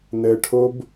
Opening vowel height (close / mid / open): mid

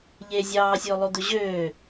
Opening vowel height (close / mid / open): mid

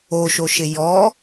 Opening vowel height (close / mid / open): mid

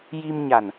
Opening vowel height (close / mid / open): close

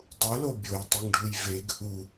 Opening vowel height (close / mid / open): close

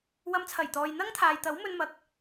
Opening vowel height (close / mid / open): open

